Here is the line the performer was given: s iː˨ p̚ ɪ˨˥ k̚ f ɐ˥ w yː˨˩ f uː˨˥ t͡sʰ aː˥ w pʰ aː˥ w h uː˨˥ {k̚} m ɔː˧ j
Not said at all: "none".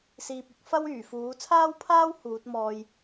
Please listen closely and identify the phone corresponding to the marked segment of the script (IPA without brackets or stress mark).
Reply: t̚